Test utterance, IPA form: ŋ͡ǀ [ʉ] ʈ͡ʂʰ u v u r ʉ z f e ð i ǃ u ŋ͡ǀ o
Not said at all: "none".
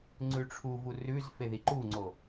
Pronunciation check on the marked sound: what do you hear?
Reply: ʉ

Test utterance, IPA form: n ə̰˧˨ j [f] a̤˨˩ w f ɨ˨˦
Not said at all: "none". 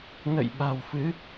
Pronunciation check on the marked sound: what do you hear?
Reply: ɓ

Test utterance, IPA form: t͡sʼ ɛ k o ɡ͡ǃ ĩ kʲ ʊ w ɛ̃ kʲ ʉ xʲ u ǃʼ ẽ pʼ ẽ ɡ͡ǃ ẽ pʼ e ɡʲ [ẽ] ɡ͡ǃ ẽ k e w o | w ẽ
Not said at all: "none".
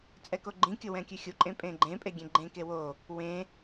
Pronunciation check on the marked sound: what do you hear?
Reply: ẽ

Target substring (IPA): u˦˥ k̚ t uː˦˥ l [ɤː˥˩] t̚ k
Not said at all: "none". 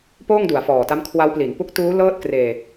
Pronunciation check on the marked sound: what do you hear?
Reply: ɤː˥˩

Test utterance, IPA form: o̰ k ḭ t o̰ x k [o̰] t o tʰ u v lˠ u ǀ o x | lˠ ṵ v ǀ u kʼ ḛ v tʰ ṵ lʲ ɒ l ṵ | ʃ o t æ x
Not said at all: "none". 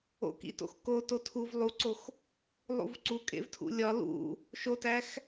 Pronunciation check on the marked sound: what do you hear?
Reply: o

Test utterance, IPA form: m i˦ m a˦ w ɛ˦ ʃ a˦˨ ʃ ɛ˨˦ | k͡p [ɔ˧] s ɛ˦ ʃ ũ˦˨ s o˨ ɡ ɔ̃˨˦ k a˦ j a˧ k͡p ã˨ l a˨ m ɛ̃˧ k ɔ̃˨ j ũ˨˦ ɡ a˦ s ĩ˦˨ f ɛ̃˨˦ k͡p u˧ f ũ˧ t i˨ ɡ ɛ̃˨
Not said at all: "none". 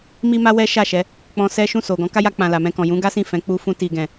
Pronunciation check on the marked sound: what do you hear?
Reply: ɔ̃˧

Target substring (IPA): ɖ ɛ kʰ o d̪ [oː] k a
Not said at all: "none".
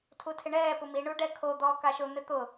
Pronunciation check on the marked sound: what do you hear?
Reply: ɔː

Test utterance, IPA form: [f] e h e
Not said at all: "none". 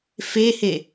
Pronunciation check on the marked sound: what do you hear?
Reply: f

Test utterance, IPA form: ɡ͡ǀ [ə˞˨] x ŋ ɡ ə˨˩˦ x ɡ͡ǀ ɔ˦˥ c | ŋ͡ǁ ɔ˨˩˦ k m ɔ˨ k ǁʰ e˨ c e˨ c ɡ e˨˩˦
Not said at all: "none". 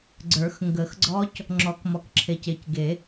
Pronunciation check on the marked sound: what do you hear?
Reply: ə˞˨˩˦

